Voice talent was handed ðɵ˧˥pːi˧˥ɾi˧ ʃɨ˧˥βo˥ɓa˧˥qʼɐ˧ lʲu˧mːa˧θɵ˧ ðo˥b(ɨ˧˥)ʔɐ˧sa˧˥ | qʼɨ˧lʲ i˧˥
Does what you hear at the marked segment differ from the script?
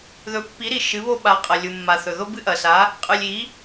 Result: yes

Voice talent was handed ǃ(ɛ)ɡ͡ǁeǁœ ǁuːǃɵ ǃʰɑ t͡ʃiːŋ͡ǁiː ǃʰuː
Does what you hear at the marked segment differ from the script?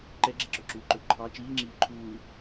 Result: no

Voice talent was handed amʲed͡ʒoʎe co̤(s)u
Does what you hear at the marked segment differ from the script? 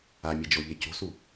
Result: no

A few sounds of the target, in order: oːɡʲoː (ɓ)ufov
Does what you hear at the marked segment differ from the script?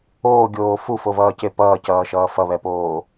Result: yes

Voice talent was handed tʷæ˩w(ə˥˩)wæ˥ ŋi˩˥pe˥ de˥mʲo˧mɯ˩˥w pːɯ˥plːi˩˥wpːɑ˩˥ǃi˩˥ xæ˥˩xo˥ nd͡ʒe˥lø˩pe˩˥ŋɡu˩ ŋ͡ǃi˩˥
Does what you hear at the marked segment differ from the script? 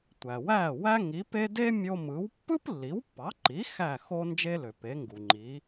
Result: yes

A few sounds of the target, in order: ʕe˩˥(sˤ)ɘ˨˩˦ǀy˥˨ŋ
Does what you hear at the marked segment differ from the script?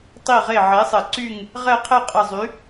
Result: no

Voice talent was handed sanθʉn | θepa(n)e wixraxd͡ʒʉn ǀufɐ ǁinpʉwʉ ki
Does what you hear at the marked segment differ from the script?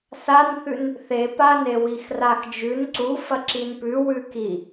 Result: no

